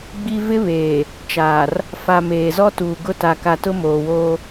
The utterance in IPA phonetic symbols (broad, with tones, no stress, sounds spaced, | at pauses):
ɡ͡b i˦ v ɪ˦ β eː˨ | t͡ʃ aː˨ r | f a˨ m eː˨ z ɔ˦ t uː˨ ɡ ʊ˦ t a˨ k a˨ t ʊ˦ m oː˨ w oː˦